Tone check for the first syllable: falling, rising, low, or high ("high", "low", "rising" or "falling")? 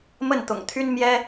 falling